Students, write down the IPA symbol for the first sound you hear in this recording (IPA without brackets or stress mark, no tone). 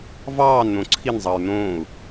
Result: v